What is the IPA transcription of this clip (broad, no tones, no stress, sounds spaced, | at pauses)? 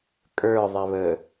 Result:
kʼ ə˞ ðˤ ɛ β ə